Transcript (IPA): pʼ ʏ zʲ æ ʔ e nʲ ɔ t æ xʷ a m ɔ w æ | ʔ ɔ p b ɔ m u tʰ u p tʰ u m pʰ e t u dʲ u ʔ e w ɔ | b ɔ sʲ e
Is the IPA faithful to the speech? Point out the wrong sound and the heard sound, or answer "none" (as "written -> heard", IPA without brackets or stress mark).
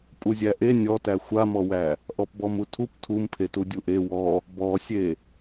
ʏ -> u